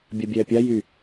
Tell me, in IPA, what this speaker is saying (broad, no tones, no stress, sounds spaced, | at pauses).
bʲ a bʲ ɛː pʲ a j y